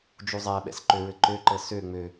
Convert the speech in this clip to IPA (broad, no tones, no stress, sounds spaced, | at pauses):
d͡ʒ u zˤ æ ɓ ɛ̰ s ǃ ø ɹ ɘ ǃ ø ǃ ɤ s ø ŋ͡m ø